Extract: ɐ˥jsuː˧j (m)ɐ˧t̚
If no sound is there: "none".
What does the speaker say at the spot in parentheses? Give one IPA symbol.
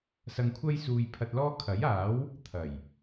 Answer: pʰ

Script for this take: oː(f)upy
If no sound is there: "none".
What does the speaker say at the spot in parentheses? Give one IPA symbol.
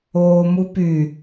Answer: m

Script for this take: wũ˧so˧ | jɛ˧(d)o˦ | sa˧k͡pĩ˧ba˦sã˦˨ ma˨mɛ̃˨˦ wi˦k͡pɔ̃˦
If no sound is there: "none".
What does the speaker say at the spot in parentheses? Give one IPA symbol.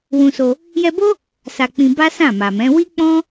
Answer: b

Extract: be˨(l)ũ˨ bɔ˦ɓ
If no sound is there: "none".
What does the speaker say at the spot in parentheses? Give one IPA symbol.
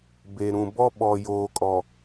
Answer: ɾ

